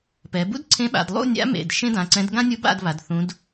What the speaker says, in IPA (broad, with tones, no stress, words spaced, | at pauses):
pɛ˩˧bṵ˥d ǀʰẽ˧˥ɓa̰˩˧d lˠṵ˥˨nʲa̰˧˥mḛ˩˧˩d ʃẽ˥dã˩˧˩ǀɛ̃˧˥d ɡã˥nʲu˧˥ba̰˥˨dβa˩˧d θũ˧˥d